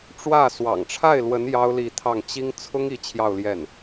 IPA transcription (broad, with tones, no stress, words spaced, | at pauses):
ʈ͡ʂwä˥˩ swɑ̰˨˩ŋʈ͡ʂʰa˥˩ɪ̯lwə˧˥n jɑ˥ʊ̯li˥˧t̪ʰɑ˥˩ŋ t͡ɕi˥ŋ t͡sʰʊ˥ŋi˧˥ t͡ɕʰjɑ˥˧ʊ̯ljɛ˥˩n